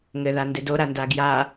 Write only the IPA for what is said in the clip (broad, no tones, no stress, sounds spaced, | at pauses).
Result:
ŋ ɘ ð a n d e d o ɾ a n d a ɡ j a